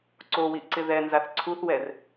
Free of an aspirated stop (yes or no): no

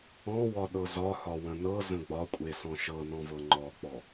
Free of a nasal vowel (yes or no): no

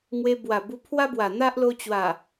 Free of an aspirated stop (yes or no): no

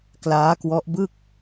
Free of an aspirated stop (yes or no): yes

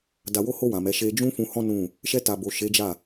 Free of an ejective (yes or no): yes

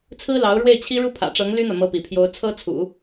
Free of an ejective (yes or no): yes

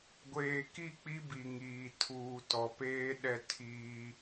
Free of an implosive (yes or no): no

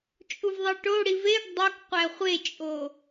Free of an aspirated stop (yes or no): yes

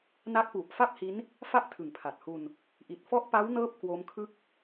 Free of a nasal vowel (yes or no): yes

